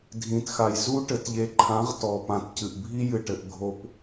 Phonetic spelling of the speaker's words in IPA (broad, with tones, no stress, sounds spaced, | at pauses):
dʱ ĩ˨ t x a˨ j z u˦ ʈ ɘ˨ t ʎ e˨ ǃʰ ã˨˦ ʁ t ɔ˨ p ã˨ t c ɨ˨ ʔ bʱ i˦ j ɨ˨ ʈ ɘ˨ ʔ ɡʱ o˨ p